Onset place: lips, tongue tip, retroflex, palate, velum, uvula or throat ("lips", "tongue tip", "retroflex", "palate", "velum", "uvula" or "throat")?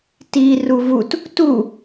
tongue tip